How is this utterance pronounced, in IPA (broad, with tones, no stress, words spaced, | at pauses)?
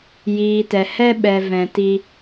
jiː˨tɛ˨hɛ˦ ɓɛ˨ vɛ̃˨ti˧